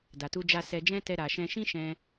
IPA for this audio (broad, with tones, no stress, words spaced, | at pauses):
da˨tu˧d͡ʒa˧ sɛ˨d͡ʒɛ̃˧ tɛ˧ɾa˨ʃɛ̃˧ ʃĩ˦ʃɛ̃˧